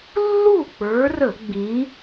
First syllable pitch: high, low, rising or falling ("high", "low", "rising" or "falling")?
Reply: falling